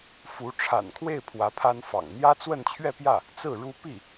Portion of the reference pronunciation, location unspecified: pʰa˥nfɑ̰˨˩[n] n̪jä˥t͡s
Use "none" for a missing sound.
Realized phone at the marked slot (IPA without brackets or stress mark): ŋ